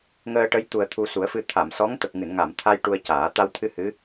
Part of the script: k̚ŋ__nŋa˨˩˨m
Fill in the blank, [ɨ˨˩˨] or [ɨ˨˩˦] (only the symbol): ɨ˨˩˨